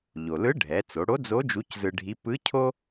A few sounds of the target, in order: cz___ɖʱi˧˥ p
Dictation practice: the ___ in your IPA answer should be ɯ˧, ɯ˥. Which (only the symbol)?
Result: ɯ˧